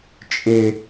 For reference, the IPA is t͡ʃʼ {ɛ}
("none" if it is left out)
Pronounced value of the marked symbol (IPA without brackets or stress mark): ɪ